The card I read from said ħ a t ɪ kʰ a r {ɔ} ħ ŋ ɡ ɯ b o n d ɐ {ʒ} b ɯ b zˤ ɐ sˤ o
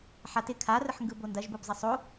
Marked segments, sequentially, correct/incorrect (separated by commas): incorrect, correct